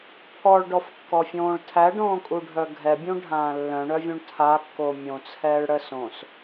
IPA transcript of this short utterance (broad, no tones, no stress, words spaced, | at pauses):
pʰɔɭɖɔfkːɔfʲõːɭ tʰæɖõːkʼuɖʱœ ɡʱɛbʲũɖʱãː lːœ̃ɳœvʲũɳ tʰakːo mʲõt͡sʰɛːɭɽə sõs